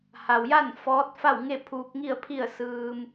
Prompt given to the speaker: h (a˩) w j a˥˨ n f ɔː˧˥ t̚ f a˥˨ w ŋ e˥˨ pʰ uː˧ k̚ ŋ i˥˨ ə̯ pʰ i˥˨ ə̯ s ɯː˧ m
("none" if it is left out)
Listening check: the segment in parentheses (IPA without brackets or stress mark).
a˩